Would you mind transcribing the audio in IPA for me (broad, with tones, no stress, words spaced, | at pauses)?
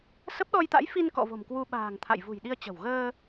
sə˦˥p̚ɗɔ˧jt̪a̰˧˥j fi˧nkɔ̰˧˨ vo̤˨˩mkwu˧ɓa̤ː˨˩ŋ t̪ʰa̰˧˨jvṳ˨˩jɗi˧ə̯t͡ɕə̤˨˩w ɣəː˧